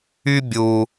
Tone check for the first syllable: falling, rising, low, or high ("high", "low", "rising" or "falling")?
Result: high